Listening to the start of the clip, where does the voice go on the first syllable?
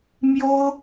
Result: high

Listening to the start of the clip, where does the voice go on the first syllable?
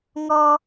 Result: high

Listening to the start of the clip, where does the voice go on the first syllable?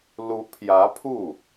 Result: rising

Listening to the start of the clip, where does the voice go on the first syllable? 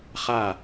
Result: falling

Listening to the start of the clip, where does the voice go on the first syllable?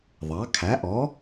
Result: rising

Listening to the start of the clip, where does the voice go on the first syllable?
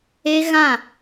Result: high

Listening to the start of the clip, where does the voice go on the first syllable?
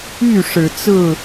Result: falling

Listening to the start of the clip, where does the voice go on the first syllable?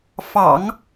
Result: low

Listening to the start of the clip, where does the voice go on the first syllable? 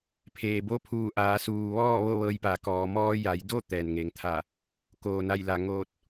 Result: low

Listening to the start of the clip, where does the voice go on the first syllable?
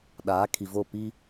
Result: rising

